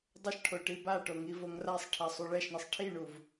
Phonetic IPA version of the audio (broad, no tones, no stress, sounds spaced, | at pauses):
dˤ ə ʃ ʈʰ o ʈ i b a ʈ o ŋ i v o ŋ r a sˤ ʈʰ ɛ sˤ u ɭ ɛ ʃ ɳ ʌ sˤ ʈʰ i ɳ u v